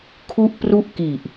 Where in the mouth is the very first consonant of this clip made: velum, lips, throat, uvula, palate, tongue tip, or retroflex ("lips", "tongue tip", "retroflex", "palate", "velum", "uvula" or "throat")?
velum